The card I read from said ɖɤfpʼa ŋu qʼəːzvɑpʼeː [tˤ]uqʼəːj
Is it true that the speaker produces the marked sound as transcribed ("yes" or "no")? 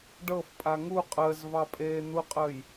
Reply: no